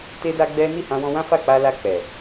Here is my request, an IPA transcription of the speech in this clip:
te˦da˦ɡ͡bɛ˦ ni˦˨hã˧wɔ̃˧ wã˦fa˦˨ k͡pa˧la˧ k͡pɛ˨

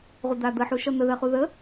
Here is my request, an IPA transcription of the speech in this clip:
ʁud̪ad̪əħu ʃʌn̪əðɜχu ðə

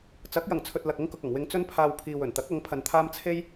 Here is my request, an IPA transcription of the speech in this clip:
t͡sɐ˨˥k̚jɐ˨˩ŋt͡sʰɵ˨t̚ lɐ˨k̚ʊ˥ŋkʊ˨k̚ɐ˨˩ŋ wɪ˧ŋt͡sɵ˥npʰaː˧w pʰiː˨wɵ˨˩nt̪ɐ˨˥k̚ ɐ˨˥ŋpʰɐ˧nt̪ʰaː˥m t͡sʰe˥j

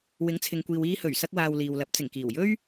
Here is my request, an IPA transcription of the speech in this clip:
wɪ˨˥ŋt͡sʰɪ˨ŋkʷiː˨w iː˧hɵ˨˩ɥsɐ˧k̚ waː˧wliː˨wlɐ˨˥p̚ t͡sɪ˨˩ŋkiː˨˩wjɵ˥ɥ

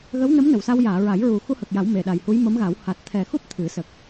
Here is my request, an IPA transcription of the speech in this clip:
ɣə˧˥wnə˧˥m nə˨˩˨wsa˧wjaː˨˩˨ɹa˨˩˦j ɹu˨˩˨ xu˧hə˨˩k̚ja˨˩˦w me˨˩ɗa˨˩j hu˧˥jmə˧˥mɣa˨˩˦w ha˨˩t̚ t̪ʰɛ˨˩xu˦˥p̚ t̪ʰɨ˨˩˦sə˨˩k̚

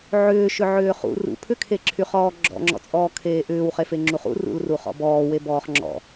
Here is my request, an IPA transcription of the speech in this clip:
ʕʏːʃʏ ʕʏːχṵ rṵ pʰʏkʰeǁʰyχɔː ɡ͡ǁɔ̰ŋ͡ǁɔ̰t͡sʼɔːkʰeː ʔʏːwχefeŋ͡ǁuχ ṵrṵlru χɔ̰bɔːwe bɔːχŋ͡ǁɔ̰

